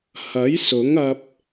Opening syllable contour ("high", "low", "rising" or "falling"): rising